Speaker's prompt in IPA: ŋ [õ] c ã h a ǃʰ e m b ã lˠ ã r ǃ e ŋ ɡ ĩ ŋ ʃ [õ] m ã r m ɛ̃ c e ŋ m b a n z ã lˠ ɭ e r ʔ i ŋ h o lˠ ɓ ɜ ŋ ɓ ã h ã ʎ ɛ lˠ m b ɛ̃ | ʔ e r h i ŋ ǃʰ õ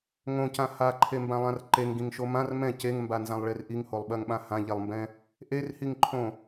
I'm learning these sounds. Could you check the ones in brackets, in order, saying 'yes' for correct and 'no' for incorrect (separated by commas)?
yes, no